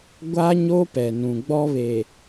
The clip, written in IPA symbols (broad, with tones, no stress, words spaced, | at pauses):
ɡʷa˦ɲo˦pɛ˨ nũ˨ɡ͡bɔ˦βe˨